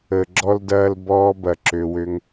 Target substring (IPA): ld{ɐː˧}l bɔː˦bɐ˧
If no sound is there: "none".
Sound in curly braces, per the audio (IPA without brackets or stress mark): ɐː˧